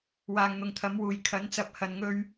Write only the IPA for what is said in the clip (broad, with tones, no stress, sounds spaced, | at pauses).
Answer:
w aː˨ ŋ n̪ ʊ˨ ŋ t̪ʰ ɐ˨˥ m w uː˨ j kʰ ɐ˨˥ n t͡s ɐ˧ p̚ h ɐ˨ n ŋ ɵ˧ ɥ